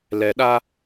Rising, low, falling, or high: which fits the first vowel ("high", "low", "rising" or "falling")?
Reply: low